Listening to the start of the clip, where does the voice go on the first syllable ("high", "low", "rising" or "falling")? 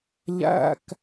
low